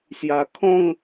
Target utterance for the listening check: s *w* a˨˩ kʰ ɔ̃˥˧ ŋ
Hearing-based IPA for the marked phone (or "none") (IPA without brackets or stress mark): j